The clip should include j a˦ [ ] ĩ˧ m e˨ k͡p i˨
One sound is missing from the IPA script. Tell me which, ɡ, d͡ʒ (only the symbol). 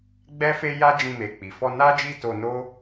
d͡ʒ